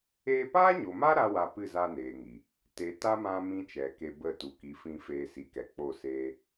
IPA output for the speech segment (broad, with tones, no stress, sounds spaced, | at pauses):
eː˧ p aː˦ ɲ o˨ m a˦ ɾ a˦ w a˧ p ɨ˦˨ z a˧ n eː˨ ŋ i˨ | t e˨ t a˦ m ã˧ m ĩ˦ t͡ʃ ɛ˨ k e˧ b ə˦˨ t u˨ k i˨˦ f ĩ˧ f eː˧ s i˨ k ɛ˨ k͡p o˦˨ s eː˦